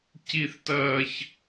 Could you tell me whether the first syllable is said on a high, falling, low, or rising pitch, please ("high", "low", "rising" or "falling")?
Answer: high